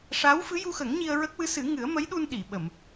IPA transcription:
ʂ a˧˥ w f ɨ˧˥ j u˧ x ə˨˩˦ ŋ ɲ i˧ ə̯ ɹ ə˦˥ k̚ w ɨ˧˥ s ɨ˨˩˦ ŋ ɨ˨˩˦ ə̯ m ə˧˥ j ɗ u˧ n ɗ i˨˩˨ ɓ ə˨˩˨ m

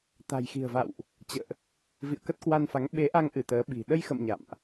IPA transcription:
t̪ a̤˨˩ j x i̤˨˩ ə̯ v a̰˧˨ w ʔ | t͡ɕ ə̰ː˧˨ ʔ | v ḭ˧˨ ə̯ k ə˦˥ t̚ k w a˧ n f a˨˦ ŋ ɓ e˨˦ ʔ a˧ ŋ ʔ ɨ˧˩ t̪ əː˨˦ ɓ i̤˨˩ ɗ ə˧ j x ə̰˧˨ m ɲ a̰˧˨ m ʔ

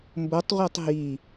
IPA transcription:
m b o tˤ ʁʷ ɛ tˤ ɦ i

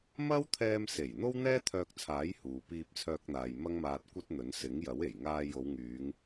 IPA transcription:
m ɐ˥ w t̪ʰ ɛː˧ m s e˨˩ j n̪ o˥ w n̪ ɛː˥ t̪ʰ œː˧ k̚ t͡sʰ aː˨˥ j h uː˨ p iː˧ p̚ t͡sʰ œː˧ k̚ n̪ aː˨ j m ɐ˥ ŋ m aː˧ t̚ kʷ ɐ˥ t̚ n̪ ɵ˨˥ n s ɪ˨˥ ŋ j ɐ˨˥ w e˨˩ j ŋ aː˧ j o˨˧ w ŋ yː˨˧ ŋ

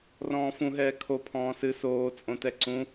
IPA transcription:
r ɔ̃ː f ũ ɦ ɛː kʰ o pʰ ɔ̃ː s ɨ s oː t͡sʼ õ t ɛ ǀ ũ

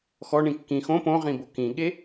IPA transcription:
x ɔ ɳ ĩ kː ĩ x õ p õ ʁ ĩ b o k ĩ ɠ e

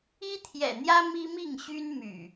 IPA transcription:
i˦ t̪ʰ j ɛ̰˨˩ n̪ j ä˦ m i˦ m i˥˨ ŋ ɕ y˦ n m y̰˨˩

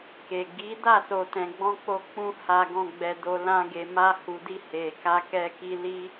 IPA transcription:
k e˨ ɡ i˨˦ d a˦˨ s o˨ t ɛ̃˨ ɡ͡b ɔ̃˧ k͡p o˧ k͡p ũ˧ h a˨ ɡ ɔ̃˨ ɡ͡b ɛ˨ d o˨ l ã˧ ɡ e˨ m a˧ h u˨ d i˧ h e˨ k a˧ k ɛ˧ k i˧ l i˧

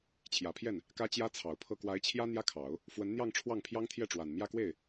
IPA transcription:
t͡ɕʰ j ä˨˩ pʰ j ɛ˥˩ n | k ä˥ t͡ɕ j ä˥ t͡sʰ ɑ˨˩ ʊ̯ pʰ ɤ˥˩ k w a˧˥ ɪ̯ t͡ɕʰ j ä˥ n̪ j ä˥ kʰ ɑ˨˩˦ ʊ̯ | f w ə˧˥ n n̪ j ɑ˥˧ ŋ ʈ͡ʂʰ w ɑ˥˩ ŋ pʰ j ɑ˥ ŋ t̪ʰ j ɛ˥˩ ʈ͡ʂ w a˨˩ n m j ä˥˧ k w e˥˩ ɪ̯

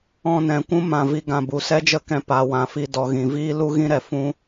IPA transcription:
ɔ̃˧ n ɛ̃˨ kʷ ũ˦ m ã˨ v i˧ ɡ ã˧ b u˨ s ɛ˦ d͡ʒ ə˦ k ɛ̃˧ p a˨ w ã˨ f i˧ d ɔ˨ ɣ ĩ˨ v iː˦ l u˦ ɣ ĩ˦ ɾ ɛ˨ f ũ˦

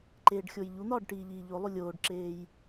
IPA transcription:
ǃ eː ɖ xʲ o j ʎ u n̪ ɒː ɖ ʈ iː ʎ iː ʎ o lˠ u lʲ oː ɖ ǁ eː j

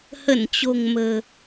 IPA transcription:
h ə˧˩ n t͡ɕ o̤˨˩ ŋ m ə̤ː˨˩

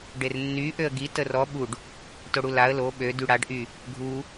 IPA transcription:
ɖ e r nː y ʔ ø ə̯ ɡ i t ə r ɔ ɓ u ɖ | t o ɽ u l a ə̯ l o ɓ ø d y ɽ a ɖ ʔ y | ɡʱ u

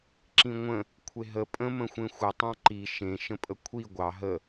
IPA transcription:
ǁ ĩ ŋʷ ə̃ | kʷʰ e ɦ ə pʼ ə̃ m ə̃ xʷ ẽ xʷ ə tˤ ɑ̃ ǃ i ʃ ẽ ʃ ə̃ pʼ ə kʷʰ i ɡʷ ɑ ɦ ə

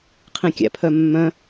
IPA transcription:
qʰ ĩ kʲ æ̰ pʰ œ mː œ̃

